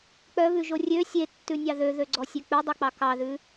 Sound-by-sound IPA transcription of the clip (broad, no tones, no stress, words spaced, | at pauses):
k͡pœβʉʒo rʲø sʲetːʉnʲɑ ðøðøɡ͡ǀɔsʲø k͡pʉdˤœk͡pɑ kɑðʉ